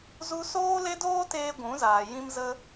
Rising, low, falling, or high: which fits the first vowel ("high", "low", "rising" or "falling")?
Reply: high